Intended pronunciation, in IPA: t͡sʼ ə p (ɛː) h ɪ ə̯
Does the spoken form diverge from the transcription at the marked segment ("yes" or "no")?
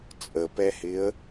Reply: yes